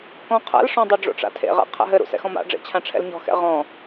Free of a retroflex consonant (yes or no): no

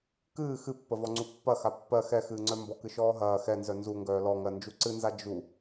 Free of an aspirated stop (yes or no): yes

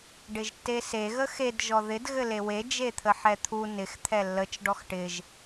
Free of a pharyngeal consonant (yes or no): no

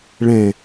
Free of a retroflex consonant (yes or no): no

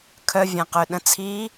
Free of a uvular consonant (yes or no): no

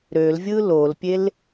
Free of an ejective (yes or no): yes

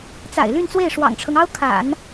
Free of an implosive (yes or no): yes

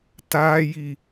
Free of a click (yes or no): yes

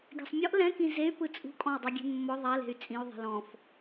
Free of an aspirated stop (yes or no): yes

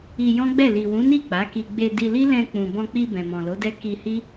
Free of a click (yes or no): yes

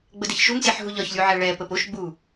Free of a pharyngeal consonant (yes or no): no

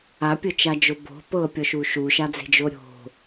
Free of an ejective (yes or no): yes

